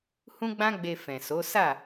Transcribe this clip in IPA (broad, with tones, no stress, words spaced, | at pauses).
hũ˦ɡ͡bã˦ɡ͡be˧ fɛ̃˨so˨˦ sa˦˨